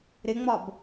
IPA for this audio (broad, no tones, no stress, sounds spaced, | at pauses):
ɾ ɪ ŋ͡m ɒ b